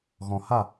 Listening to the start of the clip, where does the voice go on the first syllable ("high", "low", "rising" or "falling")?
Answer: low